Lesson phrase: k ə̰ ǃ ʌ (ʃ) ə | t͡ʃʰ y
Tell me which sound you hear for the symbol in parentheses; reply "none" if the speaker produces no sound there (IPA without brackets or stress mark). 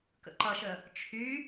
ʃ